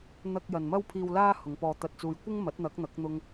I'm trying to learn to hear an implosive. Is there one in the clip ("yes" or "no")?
no